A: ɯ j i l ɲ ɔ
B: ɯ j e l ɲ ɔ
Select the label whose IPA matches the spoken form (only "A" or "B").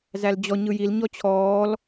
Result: A